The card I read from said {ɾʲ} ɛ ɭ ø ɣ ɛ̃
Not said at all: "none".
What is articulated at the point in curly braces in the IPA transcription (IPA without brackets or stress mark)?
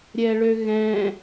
ɾʲ